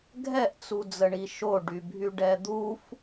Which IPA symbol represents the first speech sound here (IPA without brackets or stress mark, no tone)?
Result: ɡʱ